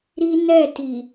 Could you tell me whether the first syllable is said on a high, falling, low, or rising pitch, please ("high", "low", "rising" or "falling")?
high